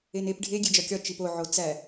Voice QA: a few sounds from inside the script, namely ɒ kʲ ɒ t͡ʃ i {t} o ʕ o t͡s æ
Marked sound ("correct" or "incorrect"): incorrect